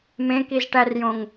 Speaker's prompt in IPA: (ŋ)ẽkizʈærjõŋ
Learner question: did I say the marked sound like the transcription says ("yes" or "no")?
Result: no